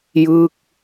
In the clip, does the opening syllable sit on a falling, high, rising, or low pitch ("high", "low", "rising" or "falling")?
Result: falling